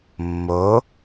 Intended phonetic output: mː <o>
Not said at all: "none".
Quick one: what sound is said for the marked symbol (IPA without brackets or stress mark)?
o